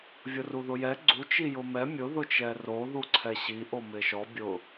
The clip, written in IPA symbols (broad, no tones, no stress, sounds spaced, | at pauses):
vʲ ʊ r u ð ʊ j ɛ ɡ͡ǀ u t͡ʃ i j ʊ m ɛ mʲ ʊ ð ʊ t͡ʃ ɛ r o ð u ǀʰ ɛ ɕ i ʔ o m ɪ ʃ ɔ bʲ ʊ